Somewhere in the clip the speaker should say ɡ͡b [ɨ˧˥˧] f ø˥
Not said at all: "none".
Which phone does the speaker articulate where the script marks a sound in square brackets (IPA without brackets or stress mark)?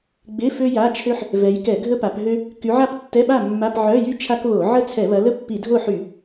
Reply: ɪ˧˥˧